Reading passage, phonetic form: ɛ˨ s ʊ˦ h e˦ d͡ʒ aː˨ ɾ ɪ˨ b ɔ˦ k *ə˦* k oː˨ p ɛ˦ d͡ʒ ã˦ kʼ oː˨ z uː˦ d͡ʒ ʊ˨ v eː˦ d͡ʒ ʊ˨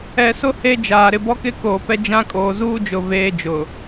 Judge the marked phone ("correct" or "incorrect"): incorrect